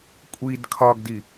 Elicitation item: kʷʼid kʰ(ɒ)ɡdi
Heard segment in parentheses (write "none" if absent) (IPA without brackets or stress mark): ɒ